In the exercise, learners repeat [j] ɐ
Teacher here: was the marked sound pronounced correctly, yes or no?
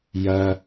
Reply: yes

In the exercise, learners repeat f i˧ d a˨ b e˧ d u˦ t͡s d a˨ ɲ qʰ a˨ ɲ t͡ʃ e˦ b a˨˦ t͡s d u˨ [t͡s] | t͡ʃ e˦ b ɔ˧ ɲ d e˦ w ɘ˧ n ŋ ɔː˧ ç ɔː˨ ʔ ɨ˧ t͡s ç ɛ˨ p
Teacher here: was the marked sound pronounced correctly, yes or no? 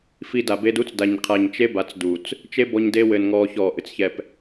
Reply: yes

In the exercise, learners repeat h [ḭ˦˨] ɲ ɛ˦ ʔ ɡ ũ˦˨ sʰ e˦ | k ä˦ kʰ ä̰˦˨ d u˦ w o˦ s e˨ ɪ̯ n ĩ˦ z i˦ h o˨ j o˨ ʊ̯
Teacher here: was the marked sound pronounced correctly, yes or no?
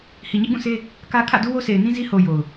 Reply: no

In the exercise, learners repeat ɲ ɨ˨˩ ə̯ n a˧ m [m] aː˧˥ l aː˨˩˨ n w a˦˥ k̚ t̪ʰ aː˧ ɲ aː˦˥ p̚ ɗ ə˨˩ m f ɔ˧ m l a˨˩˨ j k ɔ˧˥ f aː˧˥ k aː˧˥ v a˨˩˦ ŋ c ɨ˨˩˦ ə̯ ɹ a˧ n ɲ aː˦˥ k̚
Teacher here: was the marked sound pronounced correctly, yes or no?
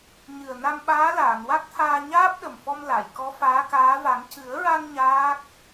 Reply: no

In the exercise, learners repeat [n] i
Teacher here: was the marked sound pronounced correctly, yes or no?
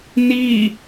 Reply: yes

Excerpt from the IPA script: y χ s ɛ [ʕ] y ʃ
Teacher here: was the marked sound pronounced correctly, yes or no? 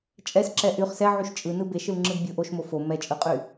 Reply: yes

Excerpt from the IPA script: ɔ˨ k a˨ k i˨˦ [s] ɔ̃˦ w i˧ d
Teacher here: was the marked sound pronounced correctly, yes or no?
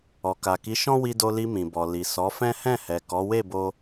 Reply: no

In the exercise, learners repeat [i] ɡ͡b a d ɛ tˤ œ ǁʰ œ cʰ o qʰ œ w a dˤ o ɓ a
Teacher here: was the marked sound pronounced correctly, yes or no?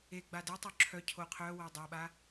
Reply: no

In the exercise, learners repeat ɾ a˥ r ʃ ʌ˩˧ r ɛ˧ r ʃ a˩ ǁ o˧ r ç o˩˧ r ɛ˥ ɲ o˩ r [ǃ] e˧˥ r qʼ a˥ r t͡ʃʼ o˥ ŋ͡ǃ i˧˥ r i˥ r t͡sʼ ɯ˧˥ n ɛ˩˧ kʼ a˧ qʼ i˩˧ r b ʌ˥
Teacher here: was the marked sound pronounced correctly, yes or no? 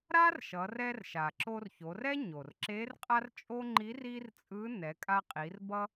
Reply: no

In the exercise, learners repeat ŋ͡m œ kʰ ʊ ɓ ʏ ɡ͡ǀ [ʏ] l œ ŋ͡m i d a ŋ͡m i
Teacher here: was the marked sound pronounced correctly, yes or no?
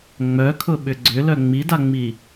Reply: yes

